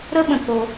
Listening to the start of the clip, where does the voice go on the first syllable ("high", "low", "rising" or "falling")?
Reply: high